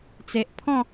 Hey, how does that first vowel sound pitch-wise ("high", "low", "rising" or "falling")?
low